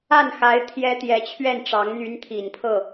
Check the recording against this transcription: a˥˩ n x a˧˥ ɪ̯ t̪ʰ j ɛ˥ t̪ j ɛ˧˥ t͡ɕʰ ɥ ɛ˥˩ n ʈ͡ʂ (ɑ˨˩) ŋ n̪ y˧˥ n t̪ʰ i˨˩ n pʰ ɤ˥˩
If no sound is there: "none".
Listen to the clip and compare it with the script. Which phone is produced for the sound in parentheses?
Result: ɑ˧˥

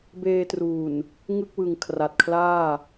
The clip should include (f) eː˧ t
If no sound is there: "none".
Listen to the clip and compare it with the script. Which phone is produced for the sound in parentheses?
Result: b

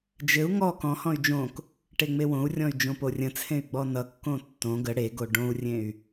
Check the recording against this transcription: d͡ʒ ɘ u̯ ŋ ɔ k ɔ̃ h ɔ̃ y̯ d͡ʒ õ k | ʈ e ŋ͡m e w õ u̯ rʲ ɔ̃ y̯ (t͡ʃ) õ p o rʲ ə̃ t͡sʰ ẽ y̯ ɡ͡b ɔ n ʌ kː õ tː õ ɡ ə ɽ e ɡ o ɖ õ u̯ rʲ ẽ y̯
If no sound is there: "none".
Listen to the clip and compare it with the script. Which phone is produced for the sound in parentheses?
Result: d͡ʒ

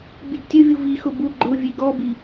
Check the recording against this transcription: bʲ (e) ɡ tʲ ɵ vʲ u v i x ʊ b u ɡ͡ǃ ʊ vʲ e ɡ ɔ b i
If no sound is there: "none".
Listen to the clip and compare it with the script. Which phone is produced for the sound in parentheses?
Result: e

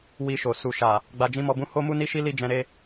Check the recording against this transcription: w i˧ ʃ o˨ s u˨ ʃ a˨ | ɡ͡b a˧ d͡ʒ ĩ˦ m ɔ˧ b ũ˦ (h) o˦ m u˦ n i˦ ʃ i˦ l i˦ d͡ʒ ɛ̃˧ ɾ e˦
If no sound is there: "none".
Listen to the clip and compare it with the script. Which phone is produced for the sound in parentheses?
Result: h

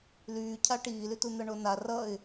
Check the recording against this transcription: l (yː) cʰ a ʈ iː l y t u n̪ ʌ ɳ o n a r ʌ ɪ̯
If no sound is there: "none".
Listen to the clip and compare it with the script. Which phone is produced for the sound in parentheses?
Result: yː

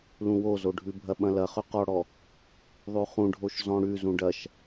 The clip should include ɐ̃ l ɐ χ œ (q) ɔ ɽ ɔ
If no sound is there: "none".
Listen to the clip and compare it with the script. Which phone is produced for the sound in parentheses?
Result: q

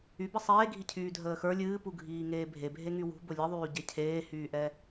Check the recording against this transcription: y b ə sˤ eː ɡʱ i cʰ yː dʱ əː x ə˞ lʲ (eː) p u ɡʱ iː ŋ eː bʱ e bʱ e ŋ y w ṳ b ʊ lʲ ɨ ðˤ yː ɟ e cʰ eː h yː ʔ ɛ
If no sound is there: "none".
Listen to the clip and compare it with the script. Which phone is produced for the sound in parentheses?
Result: ɨː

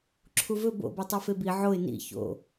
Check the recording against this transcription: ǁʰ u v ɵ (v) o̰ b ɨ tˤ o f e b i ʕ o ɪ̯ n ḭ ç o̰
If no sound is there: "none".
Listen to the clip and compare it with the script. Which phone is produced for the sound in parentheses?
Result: b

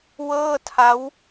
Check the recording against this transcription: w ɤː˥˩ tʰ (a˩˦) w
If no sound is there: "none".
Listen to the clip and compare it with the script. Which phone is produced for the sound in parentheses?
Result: a˦˥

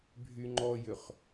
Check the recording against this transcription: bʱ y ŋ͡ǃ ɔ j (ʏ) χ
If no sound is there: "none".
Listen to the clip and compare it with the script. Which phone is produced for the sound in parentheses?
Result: ʏ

